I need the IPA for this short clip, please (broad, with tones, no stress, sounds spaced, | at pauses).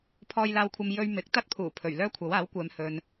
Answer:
pʰ ɔː˧ j l aː˧ w kʷʰ ɐ˧ m j ɵ˧ ɥ m ɪ˨˥ k̚ t̪ ɐ˥ t̚ pʰ uː˨˩ pʰ ɵ˨˩ ɥ l œː˥ kʷʰ ɐ˨˥ w aː˨˥ w kʷ ɛː˨˧ m h ɵ˨ n